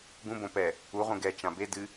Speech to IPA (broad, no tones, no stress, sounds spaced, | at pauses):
ɡ ũ b õ p ɛ | u ʁ ũ ɡ ɛ t͡ʃ ã b e d ɨ